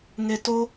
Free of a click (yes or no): yes